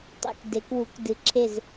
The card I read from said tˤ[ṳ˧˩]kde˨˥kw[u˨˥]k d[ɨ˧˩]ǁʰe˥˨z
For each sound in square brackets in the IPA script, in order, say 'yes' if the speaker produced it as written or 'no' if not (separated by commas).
no, yes, no